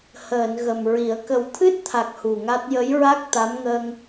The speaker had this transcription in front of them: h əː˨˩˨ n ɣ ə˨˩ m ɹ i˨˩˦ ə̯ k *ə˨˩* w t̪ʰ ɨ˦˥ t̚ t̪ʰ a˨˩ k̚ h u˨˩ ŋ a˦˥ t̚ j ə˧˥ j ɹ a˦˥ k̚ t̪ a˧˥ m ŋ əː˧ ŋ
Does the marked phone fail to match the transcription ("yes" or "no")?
no